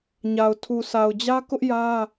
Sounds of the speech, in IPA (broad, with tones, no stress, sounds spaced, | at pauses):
ɲ a˨ ʊ̯ tʰ u˨ s a˨ ʊ̯ d͡ʑ ä˦ k ʊ˦ ʔ j ä˦